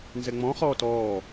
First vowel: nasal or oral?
oral